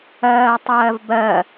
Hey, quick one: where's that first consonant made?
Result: tongue tip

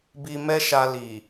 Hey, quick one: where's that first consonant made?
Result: lips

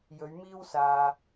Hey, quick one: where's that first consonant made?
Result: palate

